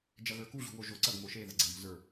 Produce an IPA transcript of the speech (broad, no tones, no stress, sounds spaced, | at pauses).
d͡ʒ ɐ ɣ ə˞ k u ʑ ṳ w o ʒ o ǀ ɐ ɡ m o ʃ e ð ɐ ɡ͡ǀ ɛ̤ m o̤ z ə˞